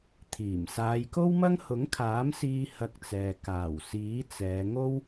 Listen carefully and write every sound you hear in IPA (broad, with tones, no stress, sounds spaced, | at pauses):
t̪ʰ iː˨˩ m s aː˨˧ j k o˥ w m ɐ˥ ŋ h ʊ˨˥ ŋ kʰ aː˨˥ m s iː˧ h ɐ˧ k̚ t͡s ɛː˨ k aː˨˩ w s iː˨˥ t͡s ɛː˨˧ ŋ o˥ w